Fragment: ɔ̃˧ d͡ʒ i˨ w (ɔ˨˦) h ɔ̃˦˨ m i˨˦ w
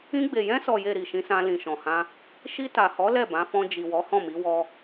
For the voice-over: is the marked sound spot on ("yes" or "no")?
yes